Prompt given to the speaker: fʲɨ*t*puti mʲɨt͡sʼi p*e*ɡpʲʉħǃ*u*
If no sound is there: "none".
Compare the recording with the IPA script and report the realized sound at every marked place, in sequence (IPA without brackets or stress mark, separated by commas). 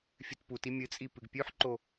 t, ɨ, o